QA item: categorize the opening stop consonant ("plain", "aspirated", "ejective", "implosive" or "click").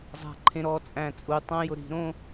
click